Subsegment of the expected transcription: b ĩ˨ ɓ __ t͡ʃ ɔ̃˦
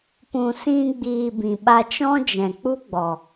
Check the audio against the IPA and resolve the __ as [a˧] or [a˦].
a˧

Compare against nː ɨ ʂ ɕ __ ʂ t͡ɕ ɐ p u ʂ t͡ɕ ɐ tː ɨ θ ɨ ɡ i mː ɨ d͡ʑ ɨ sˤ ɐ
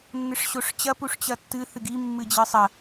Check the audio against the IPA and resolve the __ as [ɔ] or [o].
o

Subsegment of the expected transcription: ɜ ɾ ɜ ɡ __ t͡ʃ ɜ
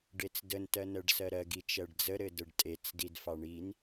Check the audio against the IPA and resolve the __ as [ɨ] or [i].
i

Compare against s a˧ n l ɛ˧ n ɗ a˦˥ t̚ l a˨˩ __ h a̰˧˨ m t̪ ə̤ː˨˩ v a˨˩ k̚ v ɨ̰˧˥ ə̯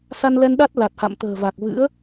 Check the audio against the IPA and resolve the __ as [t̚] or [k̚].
t̚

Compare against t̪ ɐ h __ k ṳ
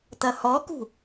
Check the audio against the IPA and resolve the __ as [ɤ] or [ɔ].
ɔ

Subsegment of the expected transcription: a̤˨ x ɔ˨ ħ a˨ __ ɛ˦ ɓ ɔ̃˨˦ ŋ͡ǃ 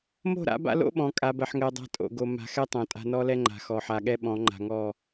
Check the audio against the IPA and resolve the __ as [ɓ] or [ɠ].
ɠ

